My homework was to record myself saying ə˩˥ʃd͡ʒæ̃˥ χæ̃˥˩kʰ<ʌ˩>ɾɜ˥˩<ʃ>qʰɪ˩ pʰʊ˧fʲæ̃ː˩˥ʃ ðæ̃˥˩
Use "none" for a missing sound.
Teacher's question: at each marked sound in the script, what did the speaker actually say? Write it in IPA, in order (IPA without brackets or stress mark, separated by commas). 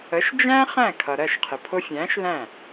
ʌ˩, ʃ